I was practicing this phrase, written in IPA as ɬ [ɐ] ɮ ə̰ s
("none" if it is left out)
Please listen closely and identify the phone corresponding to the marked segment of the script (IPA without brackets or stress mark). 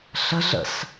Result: ə